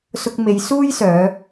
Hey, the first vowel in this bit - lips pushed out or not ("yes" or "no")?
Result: yes